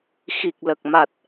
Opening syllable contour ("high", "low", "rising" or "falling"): low